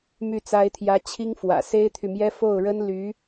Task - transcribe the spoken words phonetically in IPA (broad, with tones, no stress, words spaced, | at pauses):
my˥˩t͡sa˥ɪ̯t̪ʰjä˥ t͡ɕʰi˥ŋfwä̰˨˩ se˥ɪ̯t̪ʰy˨mjɛ˥ fo˥˩ʊ̯ɻə˥n ly˧˥